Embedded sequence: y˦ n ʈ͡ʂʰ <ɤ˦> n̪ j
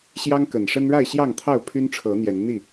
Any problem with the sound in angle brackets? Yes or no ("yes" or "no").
yes